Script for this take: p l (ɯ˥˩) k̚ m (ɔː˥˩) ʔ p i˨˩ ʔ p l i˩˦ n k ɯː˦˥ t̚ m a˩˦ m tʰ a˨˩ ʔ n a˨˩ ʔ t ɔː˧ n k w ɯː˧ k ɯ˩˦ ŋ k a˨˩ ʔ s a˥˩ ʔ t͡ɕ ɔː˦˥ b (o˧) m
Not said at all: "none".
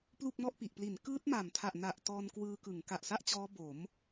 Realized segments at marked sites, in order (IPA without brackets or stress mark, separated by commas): u˥˩, ɔ˥˩, o˩˦